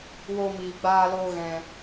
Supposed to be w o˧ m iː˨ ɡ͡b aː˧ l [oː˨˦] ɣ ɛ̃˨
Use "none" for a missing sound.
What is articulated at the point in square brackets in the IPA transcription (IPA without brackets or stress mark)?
oː˧